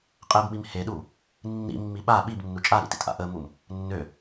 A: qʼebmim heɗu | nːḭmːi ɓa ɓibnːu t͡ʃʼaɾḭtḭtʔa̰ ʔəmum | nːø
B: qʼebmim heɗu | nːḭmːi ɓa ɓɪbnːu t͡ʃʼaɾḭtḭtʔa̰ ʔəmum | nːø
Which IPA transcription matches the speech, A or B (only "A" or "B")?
A